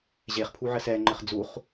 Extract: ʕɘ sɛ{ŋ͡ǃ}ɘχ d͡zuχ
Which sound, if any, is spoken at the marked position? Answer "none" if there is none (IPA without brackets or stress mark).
ŋ͡ǃ